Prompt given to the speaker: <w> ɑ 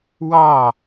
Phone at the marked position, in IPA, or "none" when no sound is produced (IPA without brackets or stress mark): w